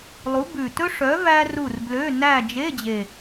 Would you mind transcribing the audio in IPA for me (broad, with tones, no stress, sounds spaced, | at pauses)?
lˠ u˨˥ b ʉ˨˩ t ɵ˥ ʂ œ˨˥ v æ˥ r u˦˨ r b l ø˧˥˧ n æ˦˨ d͡ʒ e˧˥˧ d͡ʑ e˨˩